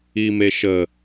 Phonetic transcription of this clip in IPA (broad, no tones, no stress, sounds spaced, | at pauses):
i m e ʃ ə